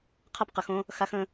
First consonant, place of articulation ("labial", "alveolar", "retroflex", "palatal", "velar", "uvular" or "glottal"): uvular